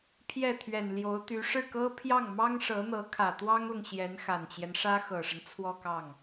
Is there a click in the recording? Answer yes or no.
no